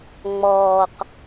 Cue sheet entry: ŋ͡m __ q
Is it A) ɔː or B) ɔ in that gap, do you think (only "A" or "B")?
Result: A